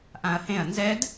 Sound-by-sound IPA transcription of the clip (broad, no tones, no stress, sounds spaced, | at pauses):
ʔ ã ɐ̯ h ẽ ɐ̯ n z ɛ d